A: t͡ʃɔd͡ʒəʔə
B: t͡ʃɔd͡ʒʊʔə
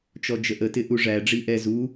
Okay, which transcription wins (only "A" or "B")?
A